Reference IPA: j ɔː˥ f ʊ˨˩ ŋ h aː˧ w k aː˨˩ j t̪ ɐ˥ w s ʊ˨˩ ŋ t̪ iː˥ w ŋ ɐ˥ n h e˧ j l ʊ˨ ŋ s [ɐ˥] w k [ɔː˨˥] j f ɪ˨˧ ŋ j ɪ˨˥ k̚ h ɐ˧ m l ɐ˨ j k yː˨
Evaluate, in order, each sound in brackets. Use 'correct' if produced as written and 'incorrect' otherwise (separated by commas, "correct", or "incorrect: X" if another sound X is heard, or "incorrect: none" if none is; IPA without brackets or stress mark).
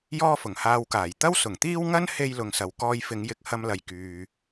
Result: incorrect: ɐ˨, incorrect: ɔː˧